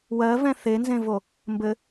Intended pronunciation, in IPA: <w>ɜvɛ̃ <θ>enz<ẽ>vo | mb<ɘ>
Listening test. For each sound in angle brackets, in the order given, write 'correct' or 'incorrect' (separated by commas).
correct, correct, correct, correct